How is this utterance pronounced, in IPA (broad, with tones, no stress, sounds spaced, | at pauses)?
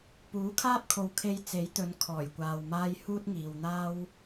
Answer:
p uː˨˥ kʰ aː˥ p̚ kʰ o˨ w kʰ e˧ j t͡s e˨˥ j t̪ ɵ˨˧ n kʰ ɔː˨˩ j kʷ aː˨ w m aː˥ j h uː˥ t̚ ŋ iː˨ w n̪ aː˥ w